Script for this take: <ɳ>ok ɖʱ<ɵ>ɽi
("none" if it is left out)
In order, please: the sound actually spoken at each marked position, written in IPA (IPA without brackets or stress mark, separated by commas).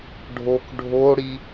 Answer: ɖʱ, o